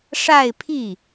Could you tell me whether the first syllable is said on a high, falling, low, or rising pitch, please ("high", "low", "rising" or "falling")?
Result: falling